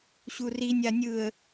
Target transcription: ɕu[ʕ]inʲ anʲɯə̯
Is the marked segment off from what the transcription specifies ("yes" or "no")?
yes